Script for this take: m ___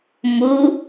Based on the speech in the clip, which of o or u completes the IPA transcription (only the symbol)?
u